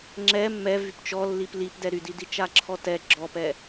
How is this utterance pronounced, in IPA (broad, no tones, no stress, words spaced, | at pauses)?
ŋ͡ǁɛ mːɛ vypt͡ʃɔlːip lipdɛ ɾydi dit͡ʃaǁʰɔtɛ ɡ͡ǁɔpɛ